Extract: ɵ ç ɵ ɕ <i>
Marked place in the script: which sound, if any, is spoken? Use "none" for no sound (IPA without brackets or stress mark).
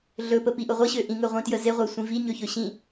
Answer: ĩ